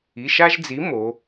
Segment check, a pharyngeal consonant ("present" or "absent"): absent